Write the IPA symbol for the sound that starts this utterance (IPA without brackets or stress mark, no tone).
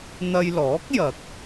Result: n̪